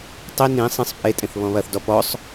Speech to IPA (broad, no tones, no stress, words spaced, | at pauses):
tˤi nĩ sˤĩsˤ pʼetʼẽθ βɔ̃βɐθdɔ pɔsˤ